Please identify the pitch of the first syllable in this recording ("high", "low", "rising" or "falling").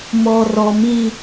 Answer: low